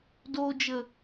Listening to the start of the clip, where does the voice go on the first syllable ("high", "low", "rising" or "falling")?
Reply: low